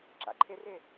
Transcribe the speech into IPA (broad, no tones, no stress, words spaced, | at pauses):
ǁa̰ǃʰɪrɪ